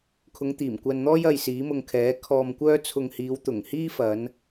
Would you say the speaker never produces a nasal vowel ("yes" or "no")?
yes